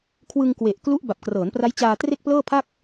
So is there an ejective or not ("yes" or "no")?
no